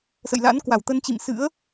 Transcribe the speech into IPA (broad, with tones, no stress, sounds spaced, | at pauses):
s ə̰˧˨ j l a̰˧˥ n k w a˧˩ w t̪ ə˧ n t͡ɕ ḭ˧˨ m s ɨ̰˧˥ ə̯